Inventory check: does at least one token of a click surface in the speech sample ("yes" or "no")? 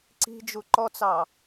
yes